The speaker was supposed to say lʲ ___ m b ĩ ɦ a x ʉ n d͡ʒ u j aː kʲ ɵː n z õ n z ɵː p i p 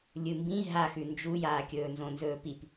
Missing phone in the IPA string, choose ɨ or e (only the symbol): ɨ